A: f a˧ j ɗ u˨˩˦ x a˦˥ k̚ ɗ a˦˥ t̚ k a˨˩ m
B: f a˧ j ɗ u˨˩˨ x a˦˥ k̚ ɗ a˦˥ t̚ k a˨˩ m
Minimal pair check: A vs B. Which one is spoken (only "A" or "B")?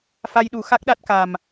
A